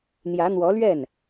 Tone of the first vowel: rising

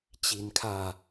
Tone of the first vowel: low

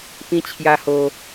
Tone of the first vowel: high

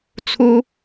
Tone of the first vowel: high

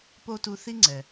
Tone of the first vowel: high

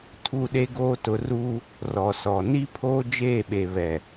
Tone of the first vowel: falling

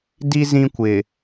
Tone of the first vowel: high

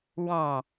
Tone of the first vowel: low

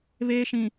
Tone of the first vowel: high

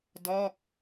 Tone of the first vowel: falling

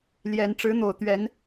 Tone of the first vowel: rising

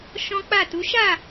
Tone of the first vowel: high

